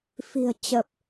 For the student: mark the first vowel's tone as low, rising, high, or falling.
low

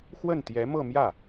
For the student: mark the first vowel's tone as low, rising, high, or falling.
falling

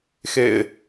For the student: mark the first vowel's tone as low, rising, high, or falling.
low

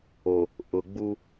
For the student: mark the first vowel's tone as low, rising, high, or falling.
low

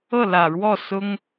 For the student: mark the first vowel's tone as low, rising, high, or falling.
falling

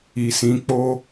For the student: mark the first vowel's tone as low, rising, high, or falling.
low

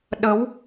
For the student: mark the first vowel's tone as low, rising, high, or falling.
rising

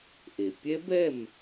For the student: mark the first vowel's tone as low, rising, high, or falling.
low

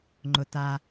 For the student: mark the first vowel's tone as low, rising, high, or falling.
low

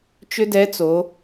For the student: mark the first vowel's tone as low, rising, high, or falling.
high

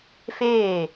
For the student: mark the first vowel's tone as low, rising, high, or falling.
falling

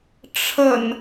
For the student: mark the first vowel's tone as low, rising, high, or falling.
low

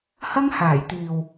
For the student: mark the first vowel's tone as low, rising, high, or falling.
high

